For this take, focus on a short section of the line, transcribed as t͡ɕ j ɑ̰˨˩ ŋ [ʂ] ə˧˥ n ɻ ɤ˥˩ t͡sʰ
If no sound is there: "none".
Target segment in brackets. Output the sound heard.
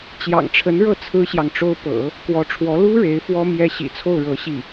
ʈ͡ʂʰ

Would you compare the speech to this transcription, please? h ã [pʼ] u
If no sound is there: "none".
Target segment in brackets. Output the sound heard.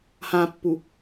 pː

